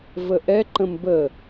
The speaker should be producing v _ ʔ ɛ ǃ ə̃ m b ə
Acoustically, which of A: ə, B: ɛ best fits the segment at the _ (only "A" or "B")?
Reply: A